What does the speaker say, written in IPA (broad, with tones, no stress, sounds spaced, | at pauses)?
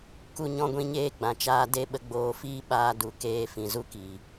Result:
k u˦ ɲ ɔ̃˦ ɡʷ ĩ˦ ɲ eː˦ ɡ͡b ã˨ t͡ʃ aː˧ d e˦ ɓ ə˧ ɡ͡b oː˧ f iː˦ ɓ aː˦ d u˨ k eː˧ f ĩ˨ z u˦ k iː˨